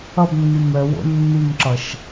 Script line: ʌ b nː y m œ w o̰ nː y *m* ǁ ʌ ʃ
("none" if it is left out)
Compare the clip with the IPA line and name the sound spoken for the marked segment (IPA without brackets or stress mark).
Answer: m